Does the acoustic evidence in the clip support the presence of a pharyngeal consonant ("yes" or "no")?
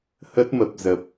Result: no